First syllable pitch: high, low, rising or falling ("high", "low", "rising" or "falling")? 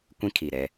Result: high